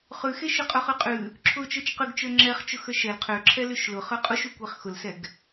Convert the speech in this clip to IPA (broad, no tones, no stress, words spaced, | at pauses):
χʉxeʃ ʊqʼʊχʉqʼʉ | ǁʰʊ t͡ʃə˞t͡ʃqʉɡt͡ʃə˞ ŋ͡ǁɛχt͡ʃʊxə˞ ʃɛl qʰø ǁʰɛlʉʃlʊ χə˞qʼuʃukʷeχ xʊlsɛɡ